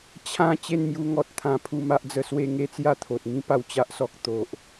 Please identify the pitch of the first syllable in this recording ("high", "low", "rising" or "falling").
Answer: falling